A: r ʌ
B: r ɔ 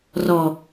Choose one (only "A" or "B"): B